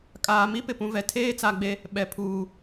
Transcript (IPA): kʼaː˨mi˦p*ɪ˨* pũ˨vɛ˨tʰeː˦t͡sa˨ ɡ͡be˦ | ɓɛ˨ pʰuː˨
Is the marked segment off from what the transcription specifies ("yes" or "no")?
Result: no